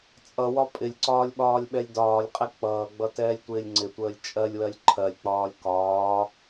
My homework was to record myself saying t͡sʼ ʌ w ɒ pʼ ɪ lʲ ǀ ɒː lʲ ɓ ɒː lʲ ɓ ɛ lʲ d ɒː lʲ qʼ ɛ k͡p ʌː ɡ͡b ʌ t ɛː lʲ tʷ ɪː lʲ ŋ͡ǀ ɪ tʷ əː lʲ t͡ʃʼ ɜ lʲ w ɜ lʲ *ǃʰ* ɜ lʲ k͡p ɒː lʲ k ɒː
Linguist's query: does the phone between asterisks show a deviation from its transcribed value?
no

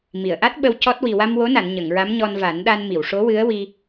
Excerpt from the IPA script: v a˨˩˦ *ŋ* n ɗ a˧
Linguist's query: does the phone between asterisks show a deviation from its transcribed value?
yes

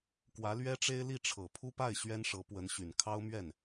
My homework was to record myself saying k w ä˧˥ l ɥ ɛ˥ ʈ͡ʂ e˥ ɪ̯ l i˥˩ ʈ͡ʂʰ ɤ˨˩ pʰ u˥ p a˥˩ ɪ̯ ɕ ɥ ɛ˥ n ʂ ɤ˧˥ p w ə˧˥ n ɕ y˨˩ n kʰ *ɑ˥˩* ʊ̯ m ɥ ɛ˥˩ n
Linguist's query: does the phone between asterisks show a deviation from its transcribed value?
yes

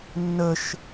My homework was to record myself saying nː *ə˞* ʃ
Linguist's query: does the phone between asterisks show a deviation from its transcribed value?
yes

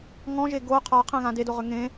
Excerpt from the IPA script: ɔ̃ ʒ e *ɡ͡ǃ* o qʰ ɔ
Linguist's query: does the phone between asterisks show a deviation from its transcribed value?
yes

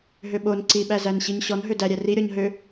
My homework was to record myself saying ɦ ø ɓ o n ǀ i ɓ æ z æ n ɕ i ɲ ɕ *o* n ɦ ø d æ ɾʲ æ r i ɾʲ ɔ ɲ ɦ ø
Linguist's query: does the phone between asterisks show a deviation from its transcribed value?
yes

